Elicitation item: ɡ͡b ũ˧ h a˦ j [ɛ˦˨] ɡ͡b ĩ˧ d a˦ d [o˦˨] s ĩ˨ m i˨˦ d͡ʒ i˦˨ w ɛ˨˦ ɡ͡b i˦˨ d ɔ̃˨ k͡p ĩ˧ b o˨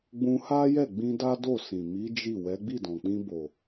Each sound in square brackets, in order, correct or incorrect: correct, correct

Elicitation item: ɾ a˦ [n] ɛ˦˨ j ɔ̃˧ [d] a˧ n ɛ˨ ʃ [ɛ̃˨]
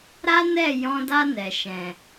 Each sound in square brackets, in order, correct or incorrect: correct, correct, correct

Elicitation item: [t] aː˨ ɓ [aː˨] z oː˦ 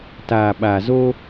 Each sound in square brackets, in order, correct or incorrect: correct, correct

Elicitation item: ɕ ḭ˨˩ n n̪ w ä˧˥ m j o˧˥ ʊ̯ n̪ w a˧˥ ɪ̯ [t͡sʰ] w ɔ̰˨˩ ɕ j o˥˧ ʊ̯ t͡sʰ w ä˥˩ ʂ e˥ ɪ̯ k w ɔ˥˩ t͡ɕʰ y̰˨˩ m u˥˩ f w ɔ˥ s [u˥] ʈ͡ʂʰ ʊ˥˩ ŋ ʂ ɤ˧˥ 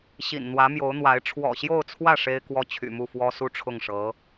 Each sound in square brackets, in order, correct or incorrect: incorrect, correct

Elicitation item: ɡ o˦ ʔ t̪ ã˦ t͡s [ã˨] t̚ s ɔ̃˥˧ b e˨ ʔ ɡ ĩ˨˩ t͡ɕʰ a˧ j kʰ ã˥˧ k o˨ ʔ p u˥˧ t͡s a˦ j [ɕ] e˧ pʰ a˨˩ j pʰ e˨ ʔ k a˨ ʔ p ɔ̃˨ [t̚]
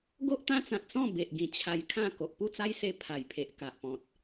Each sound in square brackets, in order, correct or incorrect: correct, incorrect, correct

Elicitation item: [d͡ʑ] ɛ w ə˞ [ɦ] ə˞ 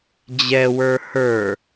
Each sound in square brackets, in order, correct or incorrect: correct, incorrect

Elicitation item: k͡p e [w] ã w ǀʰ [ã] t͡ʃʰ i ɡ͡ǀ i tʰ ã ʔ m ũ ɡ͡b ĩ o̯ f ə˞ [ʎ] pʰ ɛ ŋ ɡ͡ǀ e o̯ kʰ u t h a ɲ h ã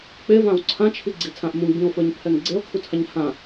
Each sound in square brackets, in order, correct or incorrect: incorrect, correct, incorrect

